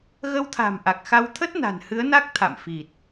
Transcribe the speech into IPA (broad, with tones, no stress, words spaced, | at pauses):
ɣə˧wt̪ʰa̤˨˩m ʔa˨˩k̚xa˧wt̪ʰə˦˥t̚ na̤˨˩nhɨ˨˦ə̯na˦˥k̚ t̪ʰa̰˧˨mfi˨˩t̚